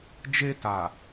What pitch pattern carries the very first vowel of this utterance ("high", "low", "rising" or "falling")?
high